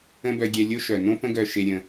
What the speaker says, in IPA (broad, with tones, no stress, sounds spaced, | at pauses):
ə̃˦ b œ˧ ɡʲ ɛ˧ lʲ o˦ ʃ œ˨ n õ˦ p ə̃˦ ɡ œ˧ ʃ e˧ ɾʲ ə̃˧